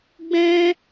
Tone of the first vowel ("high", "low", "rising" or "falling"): high